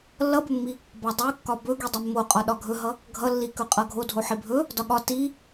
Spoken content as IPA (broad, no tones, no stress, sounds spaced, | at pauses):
lː ʌ b ɵ mː i | b ɒ dˤ u kː ɒ b ɵ ɡ i dˤ ɵ mː o qʼ ɒ ɗ ɒ ɡʱ ɵ ɦ ʌ | ɡʱ ʌ lː i k ɵ qʼ ʌ ɡʱ o dʱ o ħ i bʱ ɵ | d ɒ ɠ ɒ t i